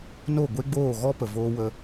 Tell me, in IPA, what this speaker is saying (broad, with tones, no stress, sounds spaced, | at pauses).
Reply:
n o˦˨ ɡʷ e˦ ɡ͡b oː˦˨ ɣ ɔ˦ p ə˨ v oː˦ w ə˦